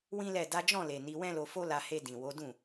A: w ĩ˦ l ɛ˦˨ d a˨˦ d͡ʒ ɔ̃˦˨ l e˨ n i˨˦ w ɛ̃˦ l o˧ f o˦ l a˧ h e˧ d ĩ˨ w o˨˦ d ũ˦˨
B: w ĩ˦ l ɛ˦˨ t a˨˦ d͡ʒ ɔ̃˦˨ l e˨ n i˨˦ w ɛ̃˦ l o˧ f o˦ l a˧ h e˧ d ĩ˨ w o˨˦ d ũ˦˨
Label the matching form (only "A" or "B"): A